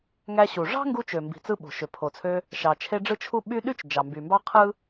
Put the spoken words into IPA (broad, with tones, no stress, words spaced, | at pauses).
ŋæ˧ɕu˩ ʐɑ̤˥ŋɡu˧t͡ʃø˩ mbi̤˩t͡sɯ˧ ɓo̤˩ʃø˩pʰo˩t͡sʰø˧ | ʃɑ˩t͡ʃʰe˧ ɖ͡ʐɯ˥t͡ʃʰu˥ ɓy˥ ɗy˥t͡ʃ d͡ʒɑ˩mby˩mbɑ˥ qʰɯ˥